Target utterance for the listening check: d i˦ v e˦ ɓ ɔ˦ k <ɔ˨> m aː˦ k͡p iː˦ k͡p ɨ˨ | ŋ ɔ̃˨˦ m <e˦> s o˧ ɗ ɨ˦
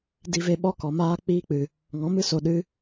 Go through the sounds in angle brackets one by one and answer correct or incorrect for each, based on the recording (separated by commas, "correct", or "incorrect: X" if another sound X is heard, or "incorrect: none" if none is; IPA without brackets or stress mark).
correct, incorrect: ɨ˦